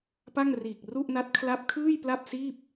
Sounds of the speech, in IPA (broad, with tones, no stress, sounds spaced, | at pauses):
p a˥˩ ŋ r iː˨˩ k̚ r u˥˩ ʔ n a˦˥ t̚ kʰ l a˦˥ p̚ kʰ ɯː˥˩ j p l a˥˩ p̚ s iː˥˩ p̚